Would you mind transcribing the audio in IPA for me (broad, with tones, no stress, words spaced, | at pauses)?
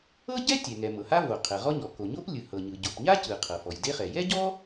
ɤ˥ɟɛ˥tʲɛ˩ŋɛ˩ mɤ˩ha˥vo˩ qʰɛ˩ʁɔ˥ɲɔ˩ ko˩ɲo˥p lʲɯ˩hɤ˩ɲɯ˩ ɟo˩pɲa˥ cɯ˩ qʰɤ˩fɔ˩jde˥χɛ˩ jɛ˥ɟɔ˥